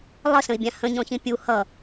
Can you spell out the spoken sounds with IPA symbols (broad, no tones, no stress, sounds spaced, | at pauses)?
lˠ ə s ə̃ i̯ bʲ ã h ə̃ ɲ ɔ̃ ç ĩ pʲ u h ʌ